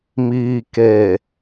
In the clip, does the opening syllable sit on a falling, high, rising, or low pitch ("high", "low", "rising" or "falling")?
low